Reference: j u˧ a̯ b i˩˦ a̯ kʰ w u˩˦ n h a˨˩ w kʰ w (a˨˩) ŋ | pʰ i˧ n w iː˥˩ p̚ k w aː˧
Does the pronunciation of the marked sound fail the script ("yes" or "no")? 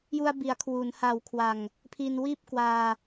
no